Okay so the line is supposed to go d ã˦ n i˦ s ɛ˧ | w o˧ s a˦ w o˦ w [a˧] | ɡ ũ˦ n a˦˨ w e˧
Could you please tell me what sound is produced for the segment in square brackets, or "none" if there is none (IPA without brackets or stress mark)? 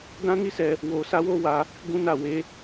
a˧